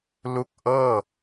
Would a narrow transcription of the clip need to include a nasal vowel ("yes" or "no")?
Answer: no